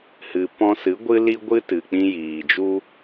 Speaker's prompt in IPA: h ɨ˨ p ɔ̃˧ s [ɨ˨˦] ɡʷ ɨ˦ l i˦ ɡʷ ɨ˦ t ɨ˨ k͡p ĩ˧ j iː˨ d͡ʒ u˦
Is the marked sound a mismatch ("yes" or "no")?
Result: no